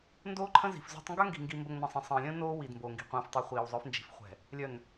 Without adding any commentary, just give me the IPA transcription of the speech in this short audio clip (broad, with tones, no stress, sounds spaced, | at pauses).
n d oː˦ ǃʰ ə̃˦ z i̤˨ f z o̤˦ tˤ ŋ ɡ œ˦ ŋ ɡ i̤˨ ŋ ɡ i˨ m b ə˨ ŋ n ə̃˨ sˤ ə̃˨ sˤ ə̃ː˨ lʲ ə̃ː˦ n oː˦ w i˨ d m b o˨ ŋ ɡ i̤˨ qʷ ə̃ː˨ f tˤ ø˨ χʷ iː˨ w zˤ œ˨˦ f n d͡ʒ i̤˨ f χʷ ɛ̤˨ | lʲ œ˨ n